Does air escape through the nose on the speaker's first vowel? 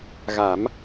no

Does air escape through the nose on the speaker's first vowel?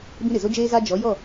yes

